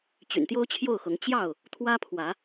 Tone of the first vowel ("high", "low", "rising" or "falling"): low